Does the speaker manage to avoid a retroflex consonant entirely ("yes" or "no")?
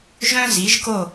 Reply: yes